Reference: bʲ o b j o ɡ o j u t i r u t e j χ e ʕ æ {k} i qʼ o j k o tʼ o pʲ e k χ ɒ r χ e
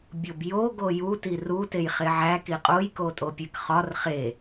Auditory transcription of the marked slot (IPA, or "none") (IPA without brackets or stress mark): k